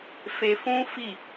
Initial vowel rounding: unrounded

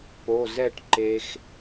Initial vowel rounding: rounded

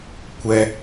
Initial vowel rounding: unrounded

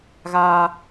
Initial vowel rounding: unrounded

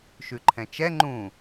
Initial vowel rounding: rounded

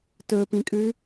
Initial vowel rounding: rounded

